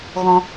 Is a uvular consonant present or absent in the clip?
absent